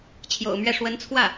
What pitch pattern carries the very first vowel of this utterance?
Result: low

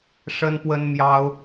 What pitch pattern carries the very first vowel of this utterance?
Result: high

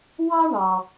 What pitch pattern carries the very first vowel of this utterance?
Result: high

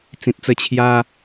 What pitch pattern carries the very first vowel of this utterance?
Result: low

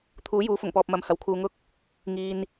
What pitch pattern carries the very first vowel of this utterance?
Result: rising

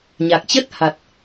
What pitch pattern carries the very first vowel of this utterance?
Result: low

